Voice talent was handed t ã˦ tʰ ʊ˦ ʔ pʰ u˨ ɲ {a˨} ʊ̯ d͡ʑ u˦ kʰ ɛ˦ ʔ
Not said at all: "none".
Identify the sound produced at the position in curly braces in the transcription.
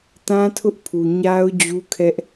a˦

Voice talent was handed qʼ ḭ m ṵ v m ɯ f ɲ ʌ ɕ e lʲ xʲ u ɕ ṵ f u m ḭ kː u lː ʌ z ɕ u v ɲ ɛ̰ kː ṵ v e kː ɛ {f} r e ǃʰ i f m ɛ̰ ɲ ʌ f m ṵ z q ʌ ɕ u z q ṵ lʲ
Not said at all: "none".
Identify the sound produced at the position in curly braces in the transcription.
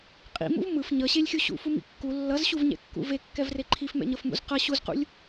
v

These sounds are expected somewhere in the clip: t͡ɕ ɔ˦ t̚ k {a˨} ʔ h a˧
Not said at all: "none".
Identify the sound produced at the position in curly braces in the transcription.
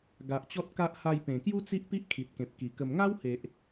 a˦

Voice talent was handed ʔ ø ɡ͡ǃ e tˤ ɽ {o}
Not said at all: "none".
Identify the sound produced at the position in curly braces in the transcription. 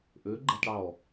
ɔ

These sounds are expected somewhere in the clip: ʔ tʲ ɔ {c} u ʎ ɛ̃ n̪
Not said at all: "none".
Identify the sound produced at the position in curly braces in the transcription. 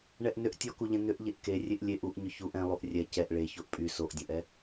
k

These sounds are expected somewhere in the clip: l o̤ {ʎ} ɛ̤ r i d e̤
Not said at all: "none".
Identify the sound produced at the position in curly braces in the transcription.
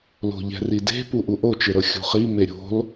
ʎ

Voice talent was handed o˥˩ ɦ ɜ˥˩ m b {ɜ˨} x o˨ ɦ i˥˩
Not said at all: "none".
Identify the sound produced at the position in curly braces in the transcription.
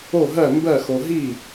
ɜ˥˩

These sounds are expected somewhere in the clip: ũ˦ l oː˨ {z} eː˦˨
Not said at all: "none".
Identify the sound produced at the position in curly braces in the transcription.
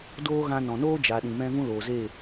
z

